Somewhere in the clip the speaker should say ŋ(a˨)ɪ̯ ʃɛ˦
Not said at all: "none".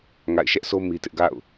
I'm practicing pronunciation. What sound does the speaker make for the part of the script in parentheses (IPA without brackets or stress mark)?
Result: a̰˦˨